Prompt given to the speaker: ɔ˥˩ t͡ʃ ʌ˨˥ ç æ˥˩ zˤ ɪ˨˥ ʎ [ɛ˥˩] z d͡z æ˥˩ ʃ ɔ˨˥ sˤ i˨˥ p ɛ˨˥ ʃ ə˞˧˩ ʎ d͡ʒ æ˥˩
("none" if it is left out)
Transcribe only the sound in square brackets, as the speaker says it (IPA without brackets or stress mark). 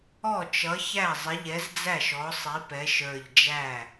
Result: ɛ˨˥